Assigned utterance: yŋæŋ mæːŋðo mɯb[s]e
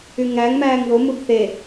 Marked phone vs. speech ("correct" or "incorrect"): incorrect